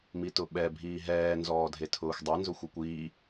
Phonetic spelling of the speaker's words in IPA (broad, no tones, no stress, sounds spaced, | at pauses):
m i t ʊ ɓ ɛ bʱ iː ɦ ɛː n z ɔː dʱ e tʰ ʊː xʷ dˤ e n z ʊ xʷ e kʷ iː